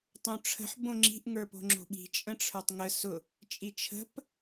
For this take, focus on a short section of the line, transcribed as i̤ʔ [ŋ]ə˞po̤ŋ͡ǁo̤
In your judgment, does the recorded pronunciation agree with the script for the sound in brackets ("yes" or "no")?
yes